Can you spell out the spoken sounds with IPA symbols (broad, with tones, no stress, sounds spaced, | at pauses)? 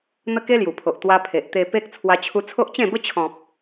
n̪ ə˦ k e˦ l j u˨˩ pʰ o˨ ʔ t̪ w a˧ pʰ e˨ ʔ t̪ e˧ p e˦ k̚ t͡sʰ w a˧ t͡ɕʰ u˧ t͡sʰ o˦ ʔ t͡ɕ ẽ˥˧ b ə˦ t͡ɕʰ ɔ̃˨ p̚